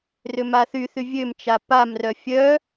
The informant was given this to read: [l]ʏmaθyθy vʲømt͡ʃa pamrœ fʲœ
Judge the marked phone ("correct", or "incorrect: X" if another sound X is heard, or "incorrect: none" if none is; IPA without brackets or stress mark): incorrect: r